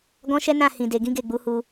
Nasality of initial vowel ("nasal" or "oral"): nasal